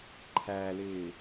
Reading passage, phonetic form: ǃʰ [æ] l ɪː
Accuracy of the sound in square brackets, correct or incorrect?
correct